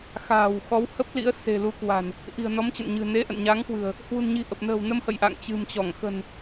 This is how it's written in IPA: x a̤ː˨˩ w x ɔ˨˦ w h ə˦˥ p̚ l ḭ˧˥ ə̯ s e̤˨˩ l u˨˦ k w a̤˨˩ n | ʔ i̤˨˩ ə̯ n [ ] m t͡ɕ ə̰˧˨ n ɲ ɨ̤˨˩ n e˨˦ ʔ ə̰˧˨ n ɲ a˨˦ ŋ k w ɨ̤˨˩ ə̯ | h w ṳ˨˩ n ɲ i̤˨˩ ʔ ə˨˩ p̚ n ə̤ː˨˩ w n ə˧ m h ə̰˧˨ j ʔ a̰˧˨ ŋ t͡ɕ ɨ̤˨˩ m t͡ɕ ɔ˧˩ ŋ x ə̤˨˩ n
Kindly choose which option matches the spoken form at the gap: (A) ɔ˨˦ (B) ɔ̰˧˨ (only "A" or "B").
A